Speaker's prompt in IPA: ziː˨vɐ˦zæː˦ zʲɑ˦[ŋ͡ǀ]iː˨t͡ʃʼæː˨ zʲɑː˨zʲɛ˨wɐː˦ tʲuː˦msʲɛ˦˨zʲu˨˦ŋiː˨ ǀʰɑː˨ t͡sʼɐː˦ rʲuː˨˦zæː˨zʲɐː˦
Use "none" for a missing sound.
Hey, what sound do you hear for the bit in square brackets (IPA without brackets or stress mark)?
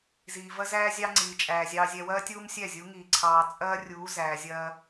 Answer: ŋ͡ǀ